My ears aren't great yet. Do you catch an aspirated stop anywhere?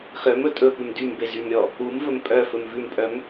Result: no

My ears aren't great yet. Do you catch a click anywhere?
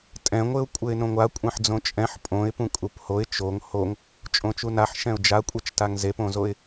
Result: no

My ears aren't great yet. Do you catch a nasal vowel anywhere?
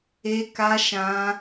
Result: yes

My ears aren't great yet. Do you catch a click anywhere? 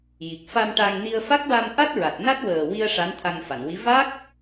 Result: no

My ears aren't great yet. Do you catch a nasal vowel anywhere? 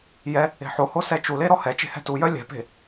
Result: no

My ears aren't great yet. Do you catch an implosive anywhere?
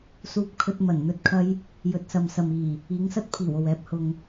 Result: no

